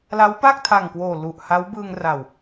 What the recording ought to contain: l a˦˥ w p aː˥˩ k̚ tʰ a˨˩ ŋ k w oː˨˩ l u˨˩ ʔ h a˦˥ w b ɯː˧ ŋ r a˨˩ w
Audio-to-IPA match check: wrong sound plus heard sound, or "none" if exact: none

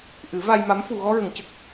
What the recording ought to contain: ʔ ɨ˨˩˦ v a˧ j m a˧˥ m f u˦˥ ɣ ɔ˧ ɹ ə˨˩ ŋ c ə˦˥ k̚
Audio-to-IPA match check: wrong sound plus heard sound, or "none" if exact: u˦˥ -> u˨˩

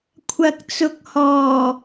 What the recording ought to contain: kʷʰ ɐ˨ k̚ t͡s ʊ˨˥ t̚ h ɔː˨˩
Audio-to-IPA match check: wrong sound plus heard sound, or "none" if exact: t̚ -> k̚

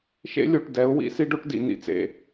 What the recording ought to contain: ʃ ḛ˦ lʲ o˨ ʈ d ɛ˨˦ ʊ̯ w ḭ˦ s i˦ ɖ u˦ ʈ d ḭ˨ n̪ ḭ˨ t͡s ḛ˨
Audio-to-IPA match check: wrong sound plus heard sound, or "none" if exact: u˦ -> o˦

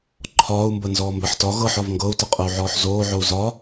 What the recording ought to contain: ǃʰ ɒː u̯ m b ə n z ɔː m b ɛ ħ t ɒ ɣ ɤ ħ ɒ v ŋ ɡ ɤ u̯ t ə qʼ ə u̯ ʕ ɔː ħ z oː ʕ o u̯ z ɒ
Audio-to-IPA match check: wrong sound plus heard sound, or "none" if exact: none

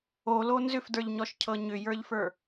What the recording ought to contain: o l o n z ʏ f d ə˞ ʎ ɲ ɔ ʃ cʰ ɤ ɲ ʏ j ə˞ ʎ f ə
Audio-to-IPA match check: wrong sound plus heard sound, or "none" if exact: ə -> ə˞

